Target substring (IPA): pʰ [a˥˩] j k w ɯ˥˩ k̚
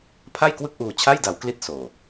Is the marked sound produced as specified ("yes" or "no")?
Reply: yes